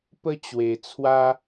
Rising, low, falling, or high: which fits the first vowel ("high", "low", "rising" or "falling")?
high